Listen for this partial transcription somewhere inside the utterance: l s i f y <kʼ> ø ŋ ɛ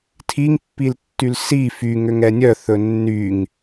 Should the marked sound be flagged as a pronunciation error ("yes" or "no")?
yes